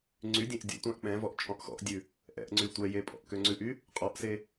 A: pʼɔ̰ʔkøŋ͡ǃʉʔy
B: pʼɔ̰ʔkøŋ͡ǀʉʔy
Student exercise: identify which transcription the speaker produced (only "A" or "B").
B